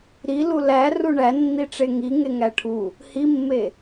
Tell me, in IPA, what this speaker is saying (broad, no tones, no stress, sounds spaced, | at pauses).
ɾ i l u l æ r u ɳ æ nː i ʈ͡ʂ e ŋ i ŋ e ŋ æ ʈʰ u | h i mː e